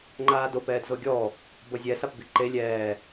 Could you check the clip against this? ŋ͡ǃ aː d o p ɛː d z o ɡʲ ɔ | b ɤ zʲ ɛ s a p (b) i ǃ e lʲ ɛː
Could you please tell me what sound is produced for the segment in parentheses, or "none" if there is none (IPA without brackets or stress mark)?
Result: b